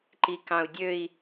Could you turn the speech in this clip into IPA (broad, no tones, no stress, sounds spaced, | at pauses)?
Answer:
ǃ i k ɑ̃ u̯ dʲ ø i̯